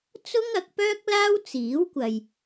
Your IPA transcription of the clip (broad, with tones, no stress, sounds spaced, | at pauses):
t͡s ʊ˥ ŋ ɐ˨˥ k̚ p œː˥ k̚ l aː˥ w t͡s iː˨˥ w kʷ ɐ˨ j